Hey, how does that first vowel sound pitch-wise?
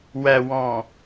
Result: low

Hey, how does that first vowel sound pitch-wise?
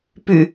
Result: low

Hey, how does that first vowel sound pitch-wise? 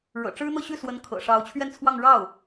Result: low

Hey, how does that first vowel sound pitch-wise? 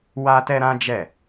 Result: high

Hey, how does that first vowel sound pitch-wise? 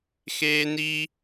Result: high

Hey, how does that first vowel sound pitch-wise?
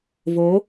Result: rising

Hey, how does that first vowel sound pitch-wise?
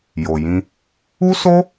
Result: low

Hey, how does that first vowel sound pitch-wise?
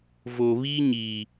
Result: low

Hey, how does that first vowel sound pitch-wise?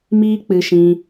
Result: high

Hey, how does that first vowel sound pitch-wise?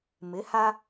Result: rising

